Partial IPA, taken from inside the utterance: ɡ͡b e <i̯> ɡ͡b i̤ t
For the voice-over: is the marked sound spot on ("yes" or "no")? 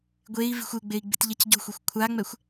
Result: yes